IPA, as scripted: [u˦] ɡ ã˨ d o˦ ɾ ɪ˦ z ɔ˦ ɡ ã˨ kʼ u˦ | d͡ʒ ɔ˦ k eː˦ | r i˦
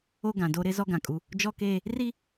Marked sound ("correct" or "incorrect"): incorrect